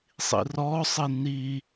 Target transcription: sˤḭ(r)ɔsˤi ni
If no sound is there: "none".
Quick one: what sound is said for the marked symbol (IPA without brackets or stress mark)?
r